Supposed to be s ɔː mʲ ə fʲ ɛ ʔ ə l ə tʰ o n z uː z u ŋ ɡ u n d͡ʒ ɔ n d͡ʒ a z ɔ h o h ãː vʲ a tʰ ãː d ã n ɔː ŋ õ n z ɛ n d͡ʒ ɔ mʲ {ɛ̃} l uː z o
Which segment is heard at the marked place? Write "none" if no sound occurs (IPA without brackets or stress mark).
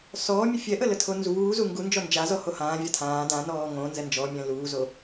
ɛ̃